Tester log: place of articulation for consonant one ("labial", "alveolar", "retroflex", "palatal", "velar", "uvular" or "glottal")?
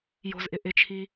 palatal